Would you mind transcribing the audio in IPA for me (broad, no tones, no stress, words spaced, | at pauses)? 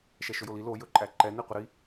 ʃɛʃɵjoli lo jɵǃʼæǃɛ niqʷəɾi